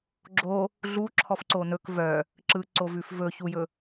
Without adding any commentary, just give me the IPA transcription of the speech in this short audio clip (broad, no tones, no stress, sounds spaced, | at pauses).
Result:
ɡ͡ǁ o | ɮ u ǁʰ ɔ f ǀ o n ɵ k v œ | ǁ ɯ ǀ o v ʉ f v ɵ ç u j ɵ